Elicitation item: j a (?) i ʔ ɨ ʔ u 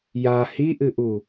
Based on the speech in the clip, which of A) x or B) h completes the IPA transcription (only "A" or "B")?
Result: B